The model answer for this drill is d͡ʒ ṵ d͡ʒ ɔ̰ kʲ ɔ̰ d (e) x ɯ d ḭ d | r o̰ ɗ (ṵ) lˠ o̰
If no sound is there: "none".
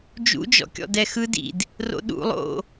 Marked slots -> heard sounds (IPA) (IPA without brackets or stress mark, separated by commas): ɛ, ṵ